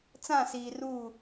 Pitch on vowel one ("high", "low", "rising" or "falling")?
falling